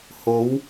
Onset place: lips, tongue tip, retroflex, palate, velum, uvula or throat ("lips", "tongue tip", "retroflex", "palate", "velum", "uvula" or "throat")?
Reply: throat